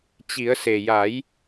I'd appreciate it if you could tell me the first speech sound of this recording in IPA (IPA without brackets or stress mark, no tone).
t͡ɕ